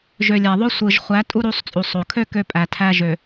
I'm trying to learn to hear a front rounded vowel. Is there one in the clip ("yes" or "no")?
yes